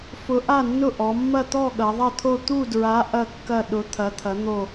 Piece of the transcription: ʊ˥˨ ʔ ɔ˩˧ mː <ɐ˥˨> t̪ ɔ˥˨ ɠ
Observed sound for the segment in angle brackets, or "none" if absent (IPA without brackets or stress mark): ɐ˥˨